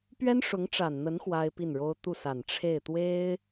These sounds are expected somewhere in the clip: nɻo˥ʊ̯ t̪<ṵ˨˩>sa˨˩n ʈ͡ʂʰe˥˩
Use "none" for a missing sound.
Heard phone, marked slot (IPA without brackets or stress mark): u˥˩